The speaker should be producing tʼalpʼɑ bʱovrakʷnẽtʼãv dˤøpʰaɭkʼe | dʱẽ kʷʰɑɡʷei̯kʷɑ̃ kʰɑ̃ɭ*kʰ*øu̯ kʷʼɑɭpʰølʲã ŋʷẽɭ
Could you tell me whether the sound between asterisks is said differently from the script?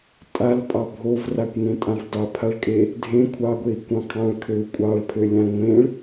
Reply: no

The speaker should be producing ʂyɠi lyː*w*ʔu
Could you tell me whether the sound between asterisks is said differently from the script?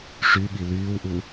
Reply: no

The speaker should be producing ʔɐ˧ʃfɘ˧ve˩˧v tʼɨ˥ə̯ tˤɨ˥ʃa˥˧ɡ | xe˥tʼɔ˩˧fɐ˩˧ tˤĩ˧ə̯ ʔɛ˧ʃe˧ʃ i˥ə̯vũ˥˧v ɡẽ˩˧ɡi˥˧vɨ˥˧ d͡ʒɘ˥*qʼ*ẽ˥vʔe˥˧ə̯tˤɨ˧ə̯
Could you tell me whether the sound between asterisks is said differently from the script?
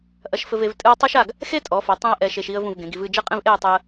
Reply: no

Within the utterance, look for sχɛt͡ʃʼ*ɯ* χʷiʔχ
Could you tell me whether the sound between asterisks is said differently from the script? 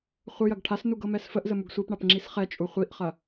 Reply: yes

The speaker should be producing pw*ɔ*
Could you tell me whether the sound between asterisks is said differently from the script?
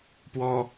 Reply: no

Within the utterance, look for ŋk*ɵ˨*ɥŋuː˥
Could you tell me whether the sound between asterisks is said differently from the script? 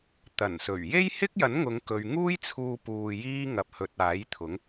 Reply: no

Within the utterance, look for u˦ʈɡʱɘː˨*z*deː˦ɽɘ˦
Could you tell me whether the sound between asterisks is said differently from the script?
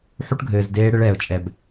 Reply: no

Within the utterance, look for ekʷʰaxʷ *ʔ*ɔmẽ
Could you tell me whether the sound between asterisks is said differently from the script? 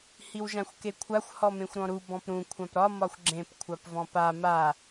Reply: yes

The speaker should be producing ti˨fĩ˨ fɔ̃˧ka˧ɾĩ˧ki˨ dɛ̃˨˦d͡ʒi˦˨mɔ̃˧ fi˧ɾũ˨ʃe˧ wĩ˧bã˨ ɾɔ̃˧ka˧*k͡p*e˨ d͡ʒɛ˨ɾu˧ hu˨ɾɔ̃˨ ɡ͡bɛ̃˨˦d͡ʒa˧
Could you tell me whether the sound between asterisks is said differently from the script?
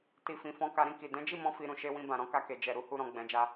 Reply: yes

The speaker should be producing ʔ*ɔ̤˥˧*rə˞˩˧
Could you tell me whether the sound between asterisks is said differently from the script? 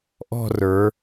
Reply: no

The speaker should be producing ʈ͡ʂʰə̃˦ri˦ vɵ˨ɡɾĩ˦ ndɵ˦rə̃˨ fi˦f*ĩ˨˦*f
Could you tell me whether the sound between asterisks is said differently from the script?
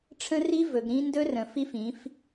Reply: no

